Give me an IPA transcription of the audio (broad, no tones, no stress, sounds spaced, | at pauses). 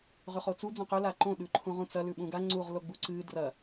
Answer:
ʁ ʉ χ o t͡s u d͡z õ q ɵ l a ǃ õ ɗ ʉ ǃʰ ũ ʁ ũ t͡s ɐ l ʉ ɓ ũ ɡ a ŋ͡ǀ u ʁ l o ɡ͡b u ǀ ɨ d r ɐ